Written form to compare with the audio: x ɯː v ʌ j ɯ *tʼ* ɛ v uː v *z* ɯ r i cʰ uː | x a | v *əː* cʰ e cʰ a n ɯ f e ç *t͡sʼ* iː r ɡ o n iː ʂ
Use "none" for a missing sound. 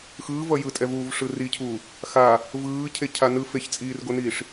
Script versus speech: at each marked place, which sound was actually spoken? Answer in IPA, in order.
tʼ, ʂ, ɯː, t͡sʼ

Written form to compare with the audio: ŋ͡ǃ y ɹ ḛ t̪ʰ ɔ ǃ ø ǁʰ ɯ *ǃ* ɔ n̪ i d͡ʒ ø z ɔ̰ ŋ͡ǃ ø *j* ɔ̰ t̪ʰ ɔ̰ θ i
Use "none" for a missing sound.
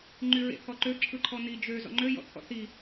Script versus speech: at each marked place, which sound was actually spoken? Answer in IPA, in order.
ǃʰ, j

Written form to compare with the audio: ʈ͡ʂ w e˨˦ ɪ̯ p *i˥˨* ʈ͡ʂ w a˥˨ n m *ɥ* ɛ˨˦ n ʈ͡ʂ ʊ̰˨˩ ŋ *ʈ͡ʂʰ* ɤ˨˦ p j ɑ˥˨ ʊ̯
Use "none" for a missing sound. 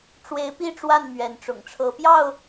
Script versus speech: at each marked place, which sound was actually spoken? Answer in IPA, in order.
i˥˨, ɥ, ʈ͡ʂʰ

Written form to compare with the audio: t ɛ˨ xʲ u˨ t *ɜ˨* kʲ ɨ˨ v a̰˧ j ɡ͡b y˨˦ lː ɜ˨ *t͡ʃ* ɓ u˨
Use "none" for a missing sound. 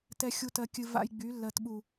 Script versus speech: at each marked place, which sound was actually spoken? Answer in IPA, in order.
ɜ˨, t

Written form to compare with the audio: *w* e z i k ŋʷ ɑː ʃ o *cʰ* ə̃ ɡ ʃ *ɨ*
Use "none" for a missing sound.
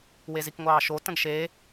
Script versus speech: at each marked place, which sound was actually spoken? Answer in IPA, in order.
w, t, e

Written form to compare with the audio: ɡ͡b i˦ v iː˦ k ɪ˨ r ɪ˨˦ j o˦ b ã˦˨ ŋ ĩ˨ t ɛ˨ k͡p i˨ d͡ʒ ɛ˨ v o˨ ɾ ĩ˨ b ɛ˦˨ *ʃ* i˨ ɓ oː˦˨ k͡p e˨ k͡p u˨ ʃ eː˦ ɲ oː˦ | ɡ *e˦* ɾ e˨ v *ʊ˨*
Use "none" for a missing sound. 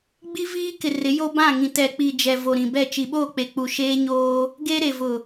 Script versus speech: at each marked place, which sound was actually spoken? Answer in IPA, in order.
t͡ʃ, e˦, ʊ˨

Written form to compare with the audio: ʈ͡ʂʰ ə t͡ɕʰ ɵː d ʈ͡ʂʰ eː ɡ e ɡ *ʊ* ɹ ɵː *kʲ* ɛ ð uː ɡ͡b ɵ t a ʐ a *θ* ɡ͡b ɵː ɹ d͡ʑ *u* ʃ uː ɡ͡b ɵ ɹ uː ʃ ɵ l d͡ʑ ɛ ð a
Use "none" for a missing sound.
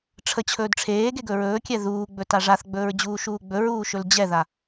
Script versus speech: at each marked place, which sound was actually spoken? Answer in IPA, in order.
ɵ, kʲ, θ, uː

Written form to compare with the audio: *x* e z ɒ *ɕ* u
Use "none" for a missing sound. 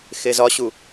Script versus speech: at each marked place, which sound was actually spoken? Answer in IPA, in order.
x, ɕ

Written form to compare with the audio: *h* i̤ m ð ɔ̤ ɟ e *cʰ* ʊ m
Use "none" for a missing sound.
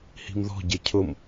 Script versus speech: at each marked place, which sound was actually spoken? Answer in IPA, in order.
h, cʰ

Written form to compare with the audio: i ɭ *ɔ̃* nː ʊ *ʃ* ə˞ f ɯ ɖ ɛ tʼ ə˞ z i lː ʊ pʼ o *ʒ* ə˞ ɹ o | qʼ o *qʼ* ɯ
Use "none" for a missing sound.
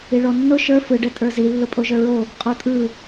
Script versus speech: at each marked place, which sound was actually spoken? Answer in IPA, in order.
ɔ, ʃ, ʒ, tʼ

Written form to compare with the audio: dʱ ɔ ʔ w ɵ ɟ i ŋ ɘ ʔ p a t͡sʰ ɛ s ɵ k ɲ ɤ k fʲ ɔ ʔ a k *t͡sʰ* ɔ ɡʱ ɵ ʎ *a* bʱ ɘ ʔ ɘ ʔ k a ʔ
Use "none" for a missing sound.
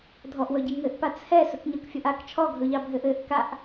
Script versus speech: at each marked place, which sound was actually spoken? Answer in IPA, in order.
t͡ʃʰ, ɑ

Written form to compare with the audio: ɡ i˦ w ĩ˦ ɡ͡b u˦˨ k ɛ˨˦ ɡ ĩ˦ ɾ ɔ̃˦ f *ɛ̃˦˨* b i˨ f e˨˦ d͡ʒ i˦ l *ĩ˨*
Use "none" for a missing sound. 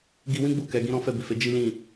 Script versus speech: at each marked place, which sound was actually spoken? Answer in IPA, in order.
ɛ˦˨, ĩ˦˨

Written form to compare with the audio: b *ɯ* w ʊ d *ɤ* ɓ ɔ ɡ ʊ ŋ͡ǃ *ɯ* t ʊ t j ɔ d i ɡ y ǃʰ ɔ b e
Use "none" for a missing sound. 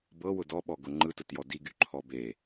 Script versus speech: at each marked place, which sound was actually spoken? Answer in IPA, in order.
ɤ, ɔ, ɯ

